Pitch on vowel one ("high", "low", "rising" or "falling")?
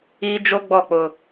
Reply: high